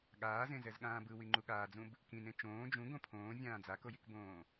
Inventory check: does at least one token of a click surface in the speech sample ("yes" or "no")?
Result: yes